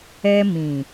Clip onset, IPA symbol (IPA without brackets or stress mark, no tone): ɛ